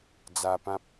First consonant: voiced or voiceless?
voiced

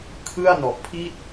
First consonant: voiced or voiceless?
voiceless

